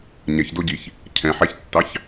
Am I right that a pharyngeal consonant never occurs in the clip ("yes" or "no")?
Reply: no